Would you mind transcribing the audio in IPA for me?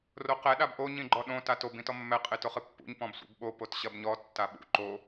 r o q ɛ ɗ a b ʔ o ɲ ĩ ɡ͡ǃ ɔ ɗ õ t a t o b ĩ t ɔ mː ɛ qʼ e t o χ ɨ pː ṵ ɲ p ɔ̃ b sʷ ḛ b ɓ o p o t ɕ ɐ b ɲ ɔ tː a ɓ ṵ ǃ o

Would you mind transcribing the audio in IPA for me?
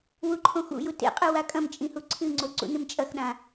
w u ǃʰ õ x ṵ j u t ḛ qʼ ɨ w a kʼ ɐ̃ m t͡ʃʼ ĩ h u ǀʰ ɨ ŋ͡ǀ o ǀ ṵ n ɨ m t͡ʃʼ ɐ x ɗ ã

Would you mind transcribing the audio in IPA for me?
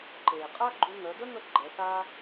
ǃ eː˩ qʼ a˥ ɡ͡ǃ u˧ ŋ œ˩˧ d ə˥ ŋ ə˧ ɡ͡ǃ ɛ˩˧ s aː˥

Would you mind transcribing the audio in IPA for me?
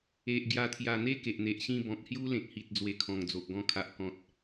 e˨ ʔ ɡ j a˨˩ t̪ʰ j a˨˩ n̪ e˦ k e˨ ʔ n̪ e˨ ʔ ɕ ĩ˥˧ b ɔ̃˨ k̚ h j u˦ l ẽ˨ k̚ h i˨ t̚ d͡z w e˧ kʰ ɔ̃˨˩ ŋ d͡z o˨ ʔ ɡ ɔ̃˧ kʰ a˨ ʔ k ɔ̃˨ t̚

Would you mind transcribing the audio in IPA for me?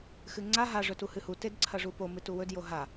x ɨ ŋ͡ǀ a ɦ a ʐ ɵ t u h ɨ h u t e d ǀʰ ɐ ʐ u p o m ɨ t u w ɵ d j o ɦ a

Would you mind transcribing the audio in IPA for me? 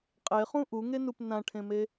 qʼ e χ ũ ʔ u ŋ e n u p n ã ʈʰ ẽ m e

